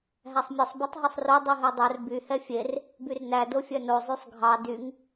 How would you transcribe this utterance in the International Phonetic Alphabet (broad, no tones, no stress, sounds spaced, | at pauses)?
ɦ æ sˤ mʲ e sˤ b ɛ tˤ ɦ y sˤ r o dˤ y ɦ e dˤ œ r b y h ɛ fʲ e r | b y r n æ d o fʲ œ n o zˤ y sˤ ɡʱ ɑ d y ŋ